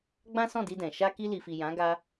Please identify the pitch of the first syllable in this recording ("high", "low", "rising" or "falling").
high